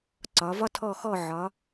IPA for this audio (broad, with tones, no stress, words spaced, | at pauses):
ǀɒ˩˧vɒ˥tʰɔ˦˨ xɔ˦˨ʕɒ˩˧